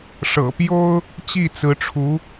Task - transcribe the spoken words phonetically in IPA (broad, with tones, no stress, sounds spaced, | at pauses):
ʂ ɤ̰˨˩ p j o˥ ʊ̯ | t͡ɕ i˥˩ t͡s ɹ̩˧˥ ʈ͡ʂʰ u˧˥